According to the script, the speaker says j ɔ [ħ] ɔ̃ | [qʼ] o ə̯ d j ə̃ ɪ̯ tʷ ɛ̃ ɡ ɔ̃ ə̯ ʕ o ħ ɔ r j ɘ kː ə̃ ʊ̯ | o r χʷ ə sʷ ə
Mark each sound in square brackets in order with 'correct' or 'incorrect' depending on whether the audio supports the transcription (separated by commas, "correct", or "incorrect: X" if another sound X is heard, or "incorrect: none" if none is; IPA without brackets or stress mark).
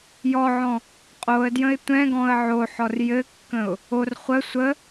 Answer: incorrect: ʕ, correct